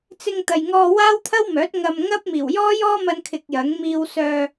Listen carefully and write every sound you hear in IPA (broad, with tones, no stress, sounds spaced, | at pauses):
t͡s ɪ˧ ŋ t̪ ɐ˨ j ŋ ɔː˧ w aː˥ w t̪ʰ ɐ˥ w m œː˨˥ t̚ ŋ ɐ˨ m ŋ ɐ˥ p̚ m iː˨˩ w j ɔː˥ j ɔː˥ m ɐ˧ n kʰ ɪ˧ k̚ j ɐ˨˥ ŋ m iː˧ w s œː˧